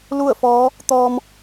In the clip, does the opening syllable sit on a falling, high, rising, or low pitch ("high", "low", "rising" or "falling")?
falling